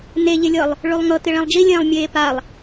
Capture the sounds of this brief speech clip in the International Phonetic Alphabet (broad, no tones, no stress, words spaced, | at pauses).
neʎɪlʲɤlˠ | ɭʉlˠŋɤ tɪɭĩlˠd͡ʒilʲẽːlˠ mʲeːpalˠ